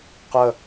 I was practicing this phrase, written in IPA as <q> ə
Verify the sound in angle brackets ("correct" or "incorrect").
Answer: correct